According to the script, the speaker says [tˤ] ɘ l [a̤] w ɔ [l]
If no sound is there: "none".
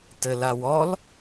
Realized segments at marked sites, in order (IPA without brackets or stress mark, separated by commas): t, a, l